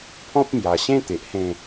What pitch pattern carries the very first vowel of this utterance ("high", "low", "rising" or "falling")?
high